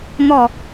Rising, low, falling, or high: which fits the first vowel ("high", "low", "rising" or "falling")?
falling